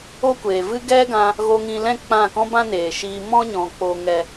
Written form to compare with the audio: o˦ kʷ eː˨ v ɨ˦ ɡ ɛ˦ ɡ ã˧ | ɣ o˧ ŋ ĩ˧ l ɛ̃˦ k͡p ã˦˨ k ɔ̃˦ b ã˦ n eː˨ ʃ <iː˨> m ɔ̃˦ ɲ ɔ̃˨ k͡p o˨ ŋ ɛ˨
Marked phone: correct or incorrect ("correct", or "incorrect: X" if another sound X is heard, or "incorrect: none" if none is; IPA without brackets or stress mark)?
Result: incorrect: iː˧